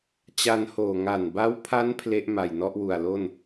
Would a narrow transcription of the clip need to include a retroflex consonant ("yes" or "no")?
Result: no